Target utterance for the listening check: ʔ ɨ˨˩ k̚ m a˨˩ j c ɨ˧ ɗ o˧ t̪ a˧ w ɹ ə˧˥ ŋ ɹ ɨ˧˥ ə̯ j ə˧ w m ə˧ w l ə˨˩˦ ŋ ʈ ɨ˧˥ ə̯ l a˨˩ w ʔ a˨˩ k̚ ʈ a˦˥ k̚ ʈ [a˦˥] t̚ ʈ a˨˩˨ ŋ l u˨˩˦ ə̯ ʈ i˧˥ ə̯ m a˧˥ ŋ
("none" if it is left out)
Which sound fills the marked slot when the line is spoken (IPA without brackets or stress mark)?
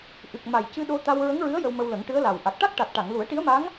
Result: a˨˩